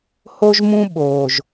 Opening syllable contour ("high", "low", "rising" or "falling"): high